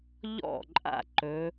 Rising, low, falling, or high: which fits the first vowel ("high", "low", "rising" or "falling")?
falling